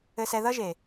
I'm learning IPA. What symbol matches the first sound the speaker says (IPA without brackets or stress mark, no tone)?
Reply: ɘ